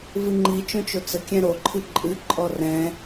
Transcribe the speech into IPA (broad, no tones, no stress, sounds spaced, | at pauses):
v ɨ ŋ͡ǃ i t͡ʃ õ t͡ʃ o t͡s ə kʲ ɛ̃ ɾ o ǃʰ ɨ ǃʼ ɨ ǃʼ ɔ r ɛ̃